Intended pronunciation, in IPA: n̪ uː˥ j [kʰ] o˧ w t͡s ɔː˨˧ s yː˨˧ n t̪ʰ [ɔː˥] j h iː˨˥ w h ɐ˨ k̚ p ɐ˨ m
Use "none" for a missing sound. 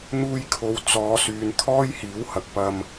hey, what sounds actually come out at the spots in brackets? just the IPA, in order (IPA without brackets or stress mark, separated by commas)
kʰ, ɔː˥